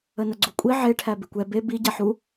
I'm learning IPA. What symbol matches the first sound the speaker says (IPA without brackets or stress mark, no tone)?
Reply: ə